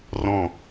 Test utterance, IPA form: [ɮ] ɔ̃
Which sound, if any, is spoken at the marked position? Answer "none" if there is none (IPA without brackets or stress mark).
r